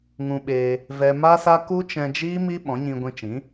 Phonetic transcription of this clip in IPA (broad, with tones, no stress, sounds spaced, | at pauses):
ŋ ũ˧ ɓ eː˧ | v ɛ˧ m a˦ s a˦ k u˦ t͡ʃ ɛ̃˧ d͡ʒ iː˦ m i˦ ɓ ɔ̃˨˦ ɲ ĩ˧ ɡʷ ĩ˧ t͡ʃ ĩ˨˦